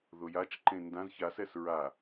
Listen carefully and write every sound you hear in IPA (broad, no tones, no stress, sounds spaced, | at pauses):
ð ʊ j a t͡ʃ ǃ ẽ n d ã z ç a s ɛ s ɹ a